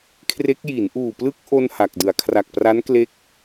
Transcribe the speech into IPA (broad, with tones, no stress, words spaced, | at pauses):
kʰre˦˥k̚ ji˩˦nʔuː˨˩plɯ˦˥k̚ ʔo˥˩nha˨˩k̚dɯ˩˦a̯ kʰra˨˩k̚pra˦˥n kle˥˩k̚